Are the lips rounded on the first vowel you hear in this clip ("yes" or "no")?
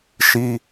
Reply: no